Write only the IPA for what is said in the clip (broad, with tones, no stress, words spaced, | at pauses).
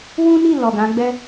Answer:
wũ˦ni˦˨ lɔ˨ɡã˨˦ɡ͡bɛ˦